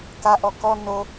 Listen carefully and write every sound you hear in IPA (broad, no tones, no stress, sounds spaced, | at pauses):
k a ʔ ɔ k ɔ n o